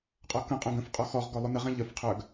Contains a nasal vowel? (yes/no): yes